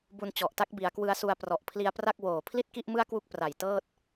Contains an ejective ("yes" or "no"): no